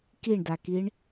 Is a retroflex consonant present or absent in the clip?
present